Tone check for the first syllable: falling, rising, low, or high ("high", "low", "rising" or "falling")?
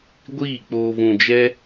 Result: falling